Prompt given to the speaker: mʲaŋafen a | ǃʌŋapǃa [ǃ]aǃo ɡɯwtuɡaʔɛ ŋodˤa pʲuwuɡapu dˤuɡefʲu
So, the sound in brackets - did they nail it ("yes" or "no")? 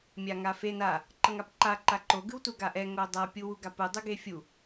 yes